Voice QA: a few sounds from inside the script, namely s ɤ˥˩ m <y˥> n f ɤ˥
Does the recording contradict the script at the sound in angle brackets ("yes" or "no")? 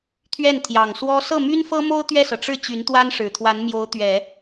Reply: no